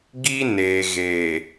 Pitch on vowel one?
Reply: high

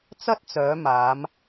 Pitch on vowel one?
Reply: high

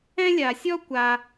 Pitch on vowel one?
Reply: high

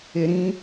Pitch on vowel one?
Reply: low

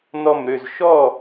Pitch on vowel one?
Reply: falling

